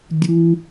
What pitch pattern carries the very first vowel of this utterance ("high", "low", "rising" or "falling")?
low